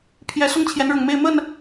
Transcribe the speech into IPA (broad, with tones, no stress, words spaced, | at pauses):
pʰjɛ˨˦ sʊ˦ŋt͡ɕʰjɛ˨˦nɻʊ˨˩ŋ me˥˨ɪ̯mə˥˨n